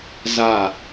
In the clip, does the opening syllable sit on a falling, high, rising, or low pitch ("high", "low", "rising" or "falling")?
falling